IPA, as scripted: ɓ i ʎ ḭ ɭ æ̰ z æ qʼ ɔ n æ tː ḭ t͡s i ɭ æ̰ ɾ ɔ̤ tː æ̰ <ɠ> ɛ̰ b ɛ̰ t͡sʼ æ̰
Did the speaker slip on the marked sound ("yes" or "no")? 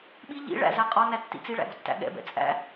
no